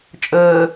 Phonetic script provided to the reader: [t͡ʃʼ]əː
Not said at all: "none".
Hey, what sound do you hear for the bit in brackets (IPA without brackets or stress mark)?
t͡ʃʼ